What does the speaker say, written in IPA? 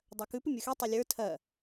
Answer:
dˤ ɜ k ʉ p ʉ mʲ ə˞ x i tˤ o lʲ ə˞ tʰ ɜ

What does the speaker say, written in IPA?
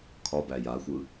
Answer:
kʰ ɒ b æ j a xʷ ɯ

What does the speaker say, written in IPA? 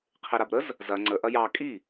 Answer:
qʰ e ɾ a b ɾ ə z | z ɐ ŋ͡ǀ ə ʔ ɐ j ɑ kʼ i

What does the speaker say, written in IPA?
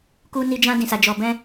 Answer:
k u˦ n i˦ d͡ʒ ã˦ d ĩ˧ s a˧ d͡ʒ ɔ˧ b ɛ̃˦

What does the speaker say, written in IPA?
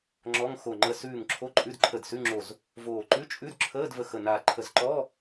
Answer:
ŋ͡ǁ ɔ˧˥˧ ŋ x o˧˩ ŋ͡ǃ ə˧˩ s ʉː˧˩ ŋ ǁʰ o˧˥˧ ǃʼ ʉ˧˥˧ d ǃʰ ə˧˩ d s ʉ˧˥˧ ŋ͡ǁ o˧˩ z | v oː˧˩ ǃ ʉ˧˥˧ t͡ʃʼ ʉ˧˥˧ d ǁʰ əː˧˥˧ d v ə˧˩ x ə˧˩ n a˧˩ ǃʰ ə˧˩ z ǃ ɔ˧˥˧

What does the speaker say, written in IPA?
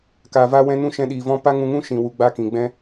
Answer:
k a˨ v a˦ w ɛ̃˦ n ũ˦ ʃ ɛ̃˧ ɗ iː˨ v ɔ̃˦ p a˦ ŋ ũ˧ ŋ ũ˦ ʃ ĩ˨ w u˧ ɡ͡b a˦ k ĩ˨ ɡ͡b ɛ̃˦

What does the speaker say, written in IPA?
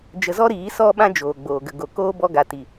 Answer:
d͡ʒ ə˧ z ɔ˦ ɾ iː˨˦ s ɔ˦ ɓ ã˦ d͡ʒ oː˨ ɡ͡b oː˨ ɡ ə˨ ɡ o˨ k oː˦ b ɔ˧ ɡ a˨ t i˨

